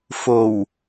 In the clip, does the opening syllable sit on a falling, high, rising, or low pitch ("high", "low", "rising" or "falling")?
low